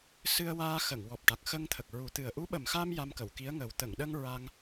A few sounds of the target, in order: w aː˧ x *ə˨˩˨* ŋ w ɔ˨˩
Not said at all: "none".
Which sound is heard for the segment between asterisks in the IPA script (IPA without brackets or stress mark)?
ə˨˩˨